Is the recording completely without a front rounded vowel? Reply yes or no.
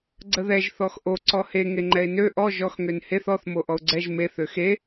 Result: no